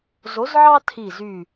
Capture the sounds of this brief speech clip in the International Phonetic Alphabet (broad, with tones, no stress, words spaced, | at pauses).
zo˨˦zʕɑ˦ tʰi˧˩zy˧˩